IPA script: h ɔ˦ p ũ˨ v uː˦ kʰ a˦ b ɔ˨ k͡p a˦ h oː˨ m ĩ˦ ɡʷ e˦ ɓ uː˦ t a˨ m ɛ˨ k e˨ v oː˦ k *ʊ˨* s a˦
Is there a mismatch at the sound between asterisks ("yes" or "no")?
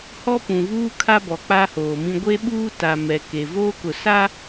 no